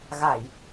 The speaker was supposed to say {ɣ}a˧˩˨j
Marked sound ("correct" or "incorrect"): correct